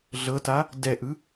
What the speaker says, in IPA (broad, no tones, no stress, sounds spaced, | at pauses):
ɮ ɤ t a | d ɛ ʔ ɯ